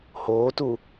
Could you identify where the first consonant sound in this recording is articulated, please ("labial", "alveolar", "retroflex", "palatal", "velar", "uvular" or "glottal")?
glottal